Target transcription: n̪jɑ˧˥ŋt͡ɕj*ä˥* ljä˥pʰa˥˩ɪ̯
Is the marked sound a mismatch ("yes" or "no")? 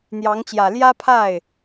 yes